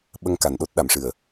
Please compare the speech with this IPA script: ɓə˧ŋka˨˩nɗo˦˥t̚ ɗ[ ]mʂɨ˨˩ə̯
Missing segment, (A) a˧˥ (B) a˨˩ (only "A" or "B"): B